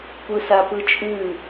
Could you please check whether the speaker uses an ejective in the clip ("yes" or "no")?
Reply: yes